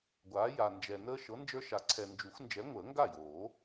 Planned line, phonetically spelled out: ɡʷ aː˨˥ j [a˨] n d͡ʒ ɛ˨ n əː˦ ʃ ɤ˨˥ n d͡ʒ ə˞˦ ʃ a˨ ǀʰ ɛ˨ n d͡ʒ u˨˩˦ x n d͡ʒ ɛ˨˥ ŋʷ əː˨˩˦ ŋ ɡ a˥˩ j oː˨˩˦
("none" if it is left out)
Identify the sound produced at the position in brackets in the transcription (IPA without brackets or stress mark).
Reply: a˨